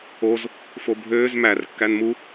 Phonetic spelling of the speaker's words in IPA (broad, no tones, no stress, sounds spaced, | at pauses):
o z | f o bʱ øː z m æ r kː æ n m u